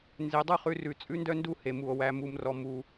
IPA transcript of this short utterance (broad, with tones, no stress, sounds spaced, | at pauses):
n z e˨˦ dˤ u˦ χ ʉ˧ r ʉ˨ t͡sʼ ʉ˦ n d œ˦ n d u˦˨ h e˧ m u˨ o̯ w æ˧ m u˧ m r ɔ˧ m u˧